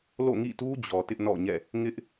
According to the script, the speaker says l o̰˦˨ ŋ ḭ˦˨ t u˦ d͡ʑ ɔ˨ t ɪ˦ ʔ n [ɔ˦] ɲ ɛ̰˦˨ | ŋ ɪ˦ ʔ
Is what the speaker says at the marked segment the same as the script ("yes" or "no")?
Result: no